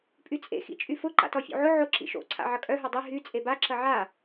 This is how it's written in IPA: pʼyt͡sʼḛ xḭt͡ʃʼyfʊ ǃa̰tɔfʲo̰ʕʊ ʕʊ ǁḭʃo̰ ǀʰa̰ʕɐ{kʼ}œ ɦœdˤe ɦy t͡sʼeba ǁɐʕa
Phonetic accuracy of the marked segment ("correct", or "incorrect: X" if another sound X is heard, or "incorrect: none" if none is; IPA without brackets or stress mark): correct